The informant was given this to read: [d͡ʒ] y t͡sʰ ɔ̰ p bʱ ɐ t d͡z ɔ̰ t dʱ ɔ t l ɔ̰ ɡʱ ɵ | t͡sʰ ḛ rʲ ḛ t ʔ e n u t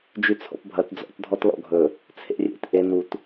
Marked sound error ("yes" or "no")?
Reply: no